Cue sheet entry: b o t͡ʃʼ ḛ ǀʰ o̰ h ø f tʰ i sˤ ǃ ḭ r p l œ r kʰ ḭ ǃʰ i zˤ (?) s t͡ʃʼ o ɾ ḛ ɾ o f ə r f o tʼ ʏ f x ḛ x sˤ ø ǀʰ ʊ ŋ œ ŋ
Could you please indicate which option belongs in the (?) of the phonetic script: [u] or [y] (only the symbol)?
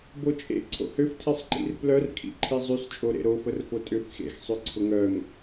y